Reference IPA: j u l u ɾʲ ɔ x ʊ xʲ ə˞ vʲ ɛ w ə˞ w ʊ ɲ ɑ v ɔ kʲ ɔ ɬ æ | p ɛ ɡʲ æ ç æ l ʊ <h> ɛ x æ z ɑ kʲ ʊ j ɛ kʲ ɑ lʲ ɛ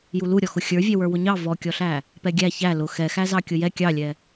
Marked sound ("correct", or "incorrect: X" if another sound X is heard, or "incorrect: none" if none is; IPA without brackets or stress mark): incorrect: x